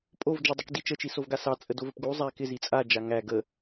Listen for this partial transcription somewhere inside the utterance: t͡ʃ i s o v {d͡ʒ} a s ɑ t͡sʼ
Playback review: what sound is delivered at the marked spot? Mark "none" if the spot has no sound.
ɡ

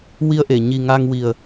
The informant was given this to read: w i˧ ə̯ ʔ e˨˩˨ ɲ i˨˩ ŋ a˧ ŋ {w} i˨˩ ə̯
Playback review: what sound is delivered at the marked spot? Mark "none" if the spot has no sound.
w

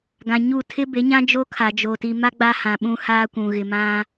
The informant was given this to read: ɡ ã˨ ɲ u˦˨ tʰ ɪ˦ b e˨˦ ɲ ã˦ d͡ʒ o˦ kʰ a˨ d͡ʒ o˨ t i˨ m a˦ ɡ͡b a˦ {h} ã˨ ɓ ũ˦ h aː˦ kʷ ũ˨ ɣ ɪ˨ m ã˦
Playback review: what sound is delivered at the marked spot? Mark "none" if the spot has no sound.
h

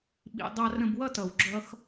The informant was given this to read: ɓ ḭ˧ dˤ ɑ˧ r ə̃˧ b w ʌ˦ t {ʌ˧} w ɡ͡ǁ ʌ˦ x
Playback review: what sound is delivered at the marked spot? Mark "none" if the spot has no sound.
ʌ˨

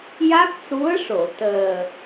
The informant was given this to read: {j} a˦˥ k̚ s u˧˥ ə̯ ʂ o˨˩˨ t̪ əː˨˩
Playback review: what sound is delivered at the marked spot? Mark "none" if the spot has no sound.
j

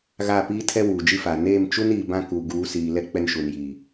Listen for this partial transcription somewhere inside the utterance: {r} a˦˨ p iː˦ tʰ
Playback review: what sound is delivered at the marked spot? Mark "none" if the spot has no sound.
ɣ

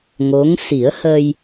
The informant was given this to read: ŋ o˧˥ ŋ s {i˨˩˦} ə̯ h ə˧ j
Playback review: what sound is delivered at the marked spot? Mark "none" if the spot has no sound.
i˨˩˦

